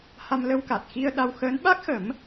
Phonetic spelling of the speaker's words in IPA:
h a˧ m l ə˧ w k a˨˩ t̚ x i˧ ə̯ ɗ a˧ w x əː˧˥ n ɓ a˦˥ k̚ x ə˨˩˦ m

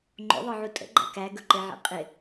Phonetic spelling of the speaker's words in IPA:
ŋ͡ǃ o̰ ðˤ ə˞ ʕ u tʼ ə̰ ɡ͡ǃ æ̰ k æ ɡ ɵ ǃ e ʕ ḛ qʼ ɪ

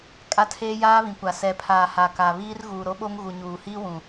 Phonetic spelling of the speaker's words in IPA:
kʼ a˦ tʰ eː˦ j aː˦ β ĩ˨ kʷ a˨ s ɛ˨ pʰ aː˨ h a˨ k a˨ β iː˦ r ɣ uː˨ ɾ o˦ ɓ o˦ ŋ ɣ u˨ ɲ uː˨ h iː˦ w ũ˨

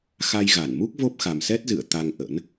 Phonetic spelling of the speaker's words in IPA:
x a˧ j ɣ a˧˩ n m u˦˥ k̚ v o˦˥ p̚ x a˨˩ m s ɛ˦˥ t̚ z ɨ̰˧˨ ə̯ t̪ a˧ ŋ ʔ ə̰˧˥ n

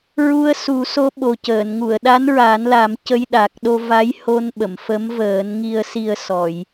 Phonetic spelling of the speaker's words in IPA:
ɹ u˧ ə̯ s u˨˩˦ s o˧˥ ɓ o˨˩ c əː˨˩˨ n ŋ u˨˩˨ ə̯ ɗ a˧˥ n ɹ a˨˩˦ n l a˨˩˦ m c ə˧ j ɗ a˨˩ k̚ ɗ o˧ v a˧˥ j h o˧ n ɓ ə˨˩˨ m f ə˧˥ m v əː˨˩˦ n ŋ i˨˩ ə̯ s i˨˩ ə̯ s ɔ˨˩˨ j

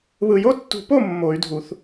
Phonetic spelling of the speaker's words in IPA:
β ɯ˨ j o˦˨ tː ṳ˨˩˦ p o˦˨ mː o˨˩˦ y̯ dʱ u˨˩˦ θ

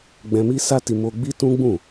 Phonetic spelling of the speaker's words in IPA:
ɡ͡b ɛ̃˧ m i˦ s a˦ t i˧ m o˧ ɡ͡b i˦ t ũ˦ ɡ͡b ũ˦˨

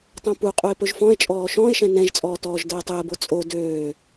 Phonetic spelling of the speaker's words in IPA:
tˤ õ p u qʼ u e̯ p ɵ ʒ f ɔ̃ e̯ t͡ʃʼ ɔː ʃ ɔ̃ e̯ ʃ ɛ̃ n ɛ̃ ʒ t͡sʼ ɔː t ɔː ʒ d əː tˤ əː b o t͡sʼ o d øː

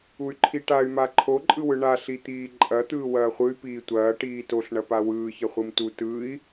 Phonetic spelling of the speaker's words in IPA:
u y̯ ǃʰ i ʈ a y̯ m a ǃʰ o ǃʼ ɯ w ɯ ɳ a ɬ i t̪ iː ǃʼ ɐ t̪ ɯː w ɐː χʷ ɯ y̯ p iː tʷ ɐː ʈ iː t o ɬ ɳ ɐ p a w ɯː ç ɐ χʷ ɯ m t u t ɯ i̯

